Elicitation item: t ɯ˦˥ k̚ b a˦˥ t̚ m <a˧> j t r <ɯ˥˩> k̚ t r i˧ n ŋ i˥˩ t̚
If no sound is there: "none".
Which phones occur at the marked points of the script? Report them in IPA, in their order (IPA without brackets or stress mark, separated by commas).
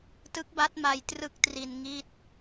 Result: a˧, ɯ˥˩